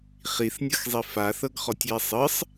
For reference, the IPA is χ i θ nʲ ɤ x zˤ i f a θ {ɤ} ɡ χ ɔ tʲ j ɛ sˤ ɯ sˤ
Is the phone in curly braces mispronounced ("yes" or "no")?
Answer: no